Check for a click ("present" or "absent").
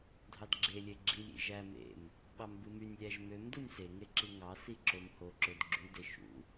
present